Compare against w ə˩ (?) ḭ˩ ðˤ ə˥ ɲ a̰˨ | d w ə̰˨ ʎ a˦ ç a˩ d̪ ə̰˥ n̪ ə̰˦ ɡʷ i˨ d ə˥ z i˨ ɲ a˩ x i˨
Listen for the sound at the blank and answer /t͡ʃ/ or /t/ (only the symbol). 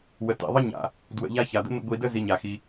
t